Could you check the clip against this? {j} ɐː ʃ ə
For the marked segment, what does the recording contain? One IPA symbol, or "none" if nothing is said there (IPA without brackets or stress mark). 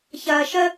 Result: ç